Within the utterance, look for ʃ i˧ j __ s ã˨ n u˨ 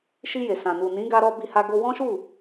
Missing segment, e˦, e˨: e˨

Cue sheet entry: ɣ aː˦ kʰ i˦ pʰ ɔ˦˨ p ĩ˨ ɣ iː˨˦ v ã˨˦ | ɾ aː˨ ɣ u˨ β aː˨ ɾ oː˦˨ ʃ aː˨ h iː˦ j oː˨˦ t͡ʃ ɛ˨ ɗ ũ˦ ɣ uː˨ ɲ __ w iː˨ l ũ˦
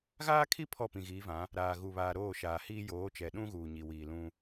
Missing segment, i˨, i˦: i˨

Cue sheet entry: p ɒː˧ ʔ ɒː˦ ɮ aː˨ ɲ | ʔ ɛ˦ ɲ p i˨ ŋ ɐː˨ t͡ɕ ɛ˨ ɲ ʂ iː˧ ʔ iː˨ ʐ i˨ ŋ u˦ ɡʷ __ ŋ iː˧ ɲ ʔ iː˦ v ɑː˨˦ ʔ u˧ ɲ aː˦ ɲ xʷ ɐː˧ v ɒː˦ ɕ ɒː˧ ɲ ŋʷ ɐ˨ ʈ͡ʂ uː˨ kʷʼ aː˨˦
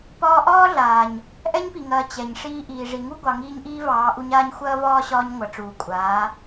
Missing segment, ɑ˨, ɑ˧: ɑ˨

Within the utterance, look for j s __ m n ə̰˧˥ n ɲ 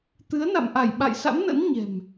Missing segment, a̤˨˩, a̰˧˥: a̰˧˥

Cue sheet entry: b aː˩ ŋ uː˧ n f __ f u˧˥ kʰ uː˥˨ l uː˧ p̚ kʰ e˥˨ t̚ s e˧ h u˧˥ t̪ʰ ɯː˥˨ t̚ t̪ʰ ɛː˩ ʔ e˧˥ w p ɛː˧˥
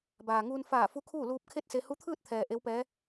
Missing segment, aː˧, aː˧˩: aː˧˩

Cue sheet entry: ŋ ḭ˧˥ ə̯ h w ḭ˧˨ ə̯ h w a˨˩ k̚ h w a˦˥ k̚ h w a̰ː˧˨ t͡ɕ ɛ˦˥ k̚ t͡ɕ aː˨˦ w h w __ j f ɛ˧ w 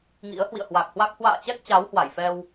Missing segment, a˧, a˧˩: a˧˩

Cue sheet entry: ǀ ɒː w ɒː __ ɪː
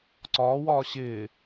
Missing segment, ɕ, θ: ɕ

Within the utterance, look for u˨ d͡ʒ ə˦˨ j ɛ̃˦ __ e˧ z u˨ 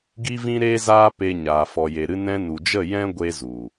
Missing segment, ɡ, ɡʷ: ɡʷ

